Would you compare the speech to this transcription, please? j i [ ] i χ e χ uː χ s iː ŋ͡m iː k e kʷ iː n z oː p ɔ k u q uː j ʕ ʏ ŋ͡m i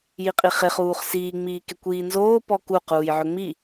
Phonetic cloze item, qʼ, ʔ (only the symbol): qʼ